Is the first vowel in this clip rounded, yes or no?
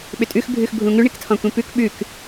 yes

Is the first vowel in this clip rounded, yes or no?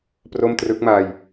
yes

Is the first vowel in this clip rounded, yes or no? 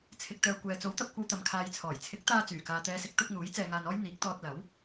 no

